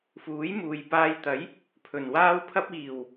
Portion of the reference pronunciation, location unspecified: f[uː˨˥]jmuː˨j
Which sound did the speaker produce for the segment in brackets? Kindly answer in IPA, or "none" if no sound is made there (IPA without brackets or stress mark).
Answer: uː˨˥